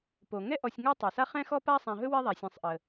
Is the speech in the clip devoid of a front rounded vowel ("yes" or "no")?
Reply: yes